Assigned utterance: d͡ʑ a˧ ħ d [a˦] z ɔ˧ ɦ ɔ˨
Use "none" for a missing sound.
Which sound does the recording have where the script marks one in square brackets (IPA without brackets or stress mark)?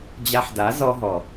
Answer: a˨˦